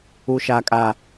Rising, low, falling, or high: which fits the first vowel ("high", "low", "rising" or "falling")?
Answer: low